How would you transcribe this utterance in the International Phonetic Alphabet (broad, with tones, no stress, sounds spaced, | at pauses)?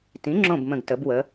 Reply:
t ĩ˩˥ ŋ͡ǁ õ˧˩ b m ə̃˧˩ ɡ t ə˩˥ b w ə˩˥